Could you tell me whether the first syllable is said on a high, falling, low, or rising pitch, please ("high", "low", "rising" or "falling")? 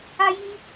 high